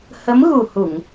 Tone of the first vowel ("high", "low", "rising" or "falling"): rising